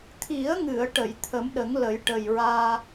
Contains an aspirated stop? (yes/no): yes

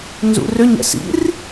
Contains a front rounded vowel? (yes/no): yes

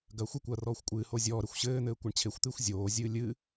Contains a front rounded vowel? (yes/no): no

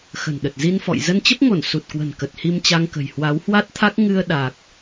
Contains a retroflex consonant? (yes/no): no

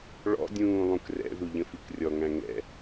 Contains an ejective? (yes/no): no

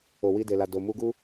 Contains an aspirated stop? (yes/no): no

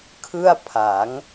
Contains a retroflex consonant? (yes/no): no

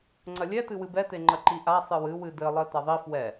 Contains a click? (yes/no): yes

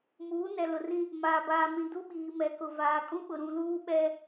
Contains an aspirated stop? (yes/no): no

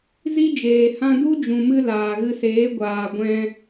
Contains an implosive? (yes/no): no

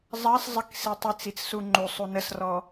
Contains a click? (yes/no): yes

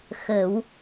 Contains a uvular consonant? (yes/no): no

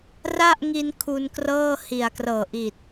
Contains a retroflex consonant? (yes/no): no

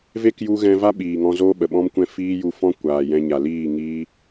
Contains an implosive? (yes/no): yes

